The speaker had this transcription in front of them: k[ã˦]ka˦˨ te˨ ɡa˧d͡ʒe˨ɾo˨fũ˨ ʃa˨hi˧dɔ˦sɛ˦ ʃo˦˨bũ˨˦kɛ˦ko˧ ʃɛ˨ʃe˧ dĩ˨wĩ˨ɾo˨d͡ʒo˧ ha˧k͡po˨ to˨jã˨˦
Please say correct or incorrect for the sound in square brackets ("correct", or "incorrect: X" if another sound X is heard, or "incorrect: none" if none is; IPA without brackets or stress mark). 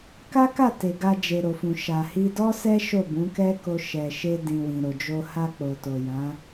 incorrect: a˦